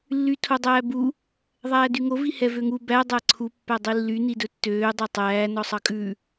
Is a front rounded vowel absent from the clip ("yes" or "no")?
no